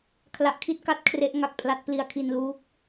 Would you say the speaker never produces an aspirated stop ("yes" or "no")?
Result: no